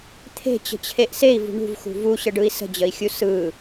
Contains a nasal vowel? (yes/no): no